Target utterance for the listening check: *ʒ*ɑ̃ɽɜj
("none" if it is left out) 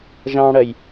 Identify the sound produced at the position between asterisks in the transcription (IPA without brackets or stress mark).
ʒ